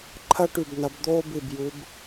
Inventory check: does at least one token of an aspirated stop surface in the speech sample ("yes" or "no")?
yes